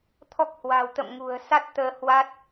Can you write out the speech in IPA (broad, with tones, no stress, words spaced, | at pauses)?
t̪ʰɔ˦˥k̚hwa̤˨˩w t̪ə̰˧˨m ŋṳ˨˩ə̯sa˦˥t̚ t̪əː˧hwa˦˥t̚